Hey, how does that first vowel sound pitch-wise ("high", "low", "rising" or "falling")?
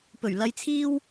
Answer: low